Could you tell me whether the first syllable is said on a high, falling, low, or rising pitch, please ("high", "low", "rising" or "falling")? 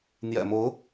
low